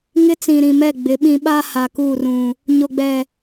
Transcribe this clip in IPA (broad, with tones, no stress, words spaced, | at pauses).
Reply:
ŋɪ˦t͡sĩ˨ɾĩ˨mɛ˦˨ ɡ͡bɪ˨˦ɓĩ˦ ɓa˦ha˨ ku˦˨rũ˨ | ɲo˨ɡ͡bɛ˨